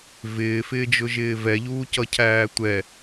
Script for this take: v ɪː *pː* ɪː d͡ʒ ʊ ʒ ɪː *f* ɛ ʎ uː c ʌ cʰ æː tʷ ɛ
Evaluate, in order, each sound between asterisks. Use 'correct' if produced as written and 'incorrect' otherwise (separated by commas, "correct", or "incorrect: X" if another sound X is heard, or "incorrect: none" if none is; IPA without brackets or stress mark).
incorrect: f, incorrect: v